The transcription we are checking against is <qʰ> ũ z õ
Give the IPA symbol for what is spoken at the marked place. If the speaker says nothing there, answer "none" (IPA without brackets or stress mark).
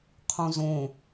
qʰ